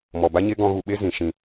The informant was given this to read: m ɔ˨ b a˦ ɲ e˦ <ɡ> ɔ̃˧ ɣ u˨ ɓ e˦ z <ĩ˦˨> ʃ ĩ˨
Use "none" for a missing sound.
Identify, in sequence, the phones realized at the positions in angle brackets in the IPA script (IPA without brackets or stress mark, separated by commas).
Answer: ɡ, ĩ˨